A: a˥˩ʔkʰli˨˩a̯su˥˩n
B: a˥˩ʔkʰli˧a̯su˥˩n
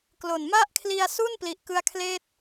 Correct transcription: B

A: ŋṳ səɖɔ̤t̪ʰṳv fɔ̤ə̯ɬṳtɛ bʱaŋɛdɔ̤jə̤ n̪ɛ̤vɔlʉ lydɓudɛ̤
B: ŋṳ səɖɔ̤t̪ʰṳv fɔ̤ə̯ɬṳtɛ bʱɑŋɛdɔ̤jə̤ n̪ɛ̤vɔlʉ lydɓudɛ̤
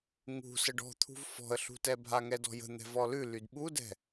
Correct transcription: A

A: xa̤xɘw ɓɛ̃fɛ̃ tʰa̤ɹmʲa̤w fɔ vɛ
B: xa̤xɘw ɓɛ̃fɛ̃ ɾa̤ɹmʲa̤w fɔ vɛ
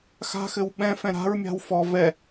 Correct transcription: B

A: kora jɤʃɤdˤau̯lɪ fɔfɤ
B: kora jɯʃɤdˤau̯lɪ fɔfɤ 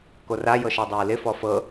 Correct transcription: A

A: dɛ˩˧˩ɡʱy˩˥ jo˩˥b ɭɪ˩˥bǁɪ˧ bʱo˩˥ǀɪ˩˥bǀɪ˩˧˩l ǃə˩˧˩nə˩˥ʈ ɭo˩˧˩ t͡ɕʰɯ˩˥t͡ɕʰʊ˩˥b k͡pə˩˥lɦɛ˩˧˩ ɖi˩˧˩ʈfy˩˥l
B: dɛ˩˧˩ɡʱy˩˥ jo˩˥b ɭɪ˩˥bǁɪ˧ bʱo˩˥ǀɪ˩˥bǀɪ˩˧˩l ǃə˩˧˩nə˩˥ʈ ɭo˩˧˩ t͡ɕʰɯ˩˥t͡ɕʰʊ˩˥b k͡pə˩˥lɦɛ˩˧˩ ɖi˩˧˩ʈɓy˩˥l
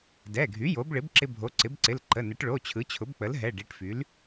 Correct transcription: A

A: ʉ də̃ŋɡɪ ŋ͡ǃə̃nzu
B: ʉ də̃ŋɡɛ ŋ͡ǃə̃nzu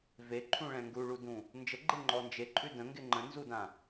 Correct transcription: A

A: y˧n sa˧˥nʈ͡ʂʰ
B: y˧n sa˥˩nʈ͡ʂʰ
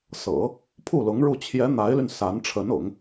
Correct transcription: A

